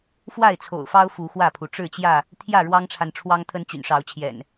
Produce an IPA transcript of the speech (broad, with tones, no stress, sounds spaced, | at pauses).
f w a˥˨ ɪ̯ t͡sʰ o̰˨˩ ʊ̯ f ɑ˦ ʊ̯ f u˨˦ x w ä˥˨ pʰ u˩ ʈ͡ʂ ɻ̩˥˨ t͡ɕ j ä˥˨ | t̪ʰ j ä˥˨ ɻ w ɑ˦ ŋ ʈ͡ʂʰ a˨ n ʈ͡ʂʰ w ɑ˦ ŋ t̪ʰ ə˦ n t͡ɕ y̰˨˩ n ʂ ɑ˨˦ ʊ̯ t͡ɕʰ j ɛ̰˨˩ n